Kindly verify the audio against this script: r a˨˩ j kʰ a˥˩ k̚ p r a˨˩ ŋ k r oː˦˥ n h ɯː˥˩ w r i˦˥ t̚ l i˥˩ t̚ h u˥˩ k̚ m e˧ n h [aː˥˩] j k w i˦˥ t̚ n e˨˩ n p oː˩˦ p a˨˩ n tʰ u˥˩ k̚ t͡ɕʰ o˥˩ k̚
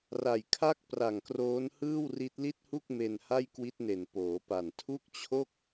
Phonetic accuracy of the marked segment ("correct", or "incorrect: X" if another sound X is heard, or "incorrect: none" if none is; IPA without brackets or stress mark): incorrect: a˥˩